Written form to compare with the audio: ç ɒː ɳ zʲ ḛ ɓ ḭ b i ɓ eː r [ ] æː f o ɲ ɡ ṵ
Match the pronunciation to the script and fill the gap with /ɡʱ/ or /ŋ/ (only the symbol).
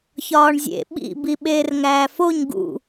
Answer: ŋ